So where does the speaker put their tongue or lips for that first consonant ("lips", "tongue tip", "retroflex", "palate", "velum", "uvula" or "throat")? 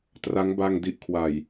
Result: tongue tip